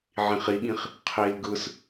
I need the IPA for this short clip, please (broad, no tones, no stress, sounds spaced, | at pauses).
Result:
ʕ ĩ χ i ɠ ĩ χ | qʰ i l ɡ ɯ s